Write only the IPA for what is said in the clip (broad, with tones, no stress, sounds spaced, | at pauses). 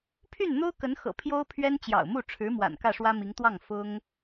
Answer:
pʰ y˥˩ n n̪ o˥ ʊ̯ k ə˧˥ n x ɤ̰˨˩ pʰ j o˥ ʊ̯ pʰ ɥ ɛ˥ n t͡ɕ j ɑ̰˨˩ ʊ̯ m u˥˩ ʈ͡ʂʰ ɻ̩˧˥ m w a̰˨˩ n k ä˥˩ ʂ w ä˥ m i˧˥ ŋ t̪ w ɑ˥˩ ŋ f ʊ˥ ŋ